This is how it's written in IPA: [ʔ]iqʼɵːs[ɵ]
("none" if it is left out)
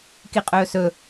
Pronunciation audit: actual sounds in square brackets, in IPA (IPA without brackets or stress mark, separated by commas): k, ɵ